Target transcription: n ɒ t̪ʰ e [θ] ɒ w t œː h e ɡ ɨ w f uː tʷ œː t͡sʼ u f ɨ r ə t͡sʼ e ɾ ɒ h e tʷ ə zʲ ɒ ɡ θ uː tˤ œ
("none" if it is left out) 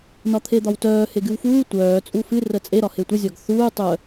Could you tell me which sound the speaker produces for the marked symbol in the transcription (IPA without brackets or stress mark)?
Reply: d̪